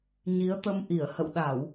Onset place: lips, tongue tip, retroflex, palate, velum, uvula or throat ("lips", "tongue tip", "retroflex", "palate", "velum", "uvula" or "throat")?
palate